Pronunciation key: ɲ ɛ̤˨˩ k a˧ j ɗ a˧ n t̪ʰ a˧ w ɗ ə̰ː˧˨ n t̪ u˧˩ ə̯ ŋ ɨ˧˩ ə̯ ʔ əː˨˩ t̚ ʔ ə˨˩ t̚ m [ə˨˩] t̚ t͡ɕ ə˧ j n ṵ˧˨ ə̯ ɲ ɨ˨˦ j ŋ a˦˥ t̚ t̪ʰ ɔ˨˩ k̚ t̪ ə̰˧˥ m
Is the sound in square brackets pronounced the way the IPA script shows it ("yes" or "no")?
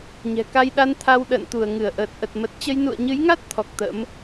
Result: yes